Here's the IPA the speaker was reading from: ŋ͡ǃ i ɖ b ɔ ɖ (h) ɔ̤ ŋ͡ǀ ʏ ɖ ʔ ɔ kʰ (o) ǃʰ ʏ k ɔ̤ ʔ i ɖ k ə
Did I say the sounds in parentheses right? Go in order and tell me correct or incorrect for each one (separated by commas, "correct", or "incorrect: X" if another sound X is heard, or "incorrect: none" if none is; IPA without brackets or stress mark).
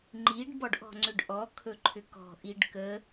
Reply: incorrect: ʔ, incorrect: ɵ